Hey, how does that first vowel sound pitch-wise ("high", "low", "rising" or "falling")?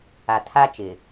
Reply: low